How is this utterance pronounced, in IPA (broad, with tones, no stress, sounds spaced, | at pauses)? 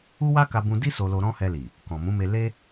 u˦ w a˦ k a˧ b ũ˧ d i˦ s o˧ l o˧ ɾ ɔ̃˦ h ɛ˧ l i˨ | k ɔ̃˨ m ũ˨˦ m e˧ l e˦